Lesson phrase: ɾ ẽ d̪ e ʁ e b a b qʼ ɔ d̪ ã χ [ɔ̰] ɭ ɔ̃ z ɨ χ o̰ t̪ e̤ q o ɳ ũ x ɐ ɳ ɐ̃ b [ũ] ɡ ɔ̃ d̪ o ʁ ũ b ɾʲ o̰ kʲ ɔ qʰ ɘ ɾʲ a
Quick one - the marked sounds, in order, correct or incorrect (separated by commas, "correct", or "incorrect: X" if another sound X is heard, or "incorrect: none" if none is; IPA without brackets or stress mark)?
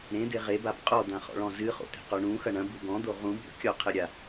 correct, incorrect: u